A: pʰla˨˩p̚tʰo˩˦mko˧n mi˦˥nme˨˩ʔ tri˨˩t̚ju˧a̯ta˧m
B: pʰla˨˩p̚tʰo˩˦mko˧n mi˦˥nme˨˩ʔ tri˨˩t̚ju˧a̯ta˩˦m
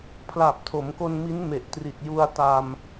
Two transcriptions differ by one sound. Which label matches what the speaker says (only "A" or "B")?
A